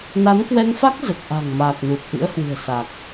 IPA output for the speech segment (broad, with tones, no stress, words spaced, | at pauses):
na˨˦nkwɛ˧ŋfa˦˥k̚ zə˨˩t̚ʔa̤˨˩ŋ maː˨˩k̚nu˨˩t̚ ʔɨ̰˧˥ə̯hwɨ̤˨˩ə̯ sa˨˩k̚